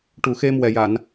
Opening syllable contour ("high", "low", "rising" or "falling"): low